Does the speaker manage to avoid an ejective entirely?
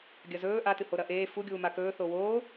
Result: yes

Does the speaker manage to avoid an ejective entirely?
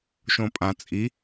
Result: no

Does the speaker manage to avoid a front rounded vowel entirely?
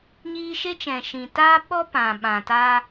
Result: yes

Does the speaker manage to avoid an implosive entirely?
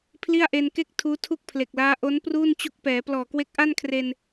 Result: yes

